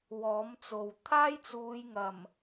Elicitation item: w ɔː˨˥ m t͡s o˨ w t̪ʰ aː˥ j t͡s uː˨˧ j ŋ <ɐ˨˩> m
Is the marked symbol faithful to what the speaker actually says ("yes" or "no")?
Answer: yes